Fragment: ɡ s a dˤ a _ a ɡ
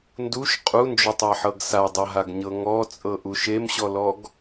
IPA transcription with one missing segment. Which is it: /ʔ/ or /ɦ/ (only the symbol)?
ɦ